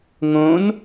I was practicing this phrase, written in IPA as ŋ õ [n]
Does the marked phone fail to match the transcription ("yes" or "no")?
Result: no